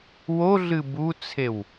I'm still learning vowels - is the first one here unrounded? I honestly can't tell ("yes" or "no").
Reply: no